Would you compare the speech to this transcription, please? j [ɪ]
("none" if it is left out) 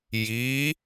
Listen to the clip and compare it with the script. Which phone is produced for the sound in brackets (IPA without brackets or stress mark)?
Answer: i